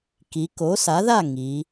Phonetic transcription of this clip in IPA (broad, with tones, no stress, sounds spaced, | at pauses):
k i˩˧ k o˩˥ s a˩˥ ð a˥˩ ŋ i˩˧